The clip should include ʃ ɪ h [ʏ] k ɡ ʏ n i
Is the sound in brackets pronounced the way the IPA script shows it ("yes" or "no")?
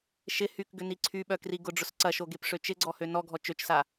no